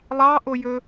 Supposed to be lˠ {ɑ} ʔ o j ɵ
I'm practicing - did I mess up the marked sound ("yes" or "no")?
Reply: no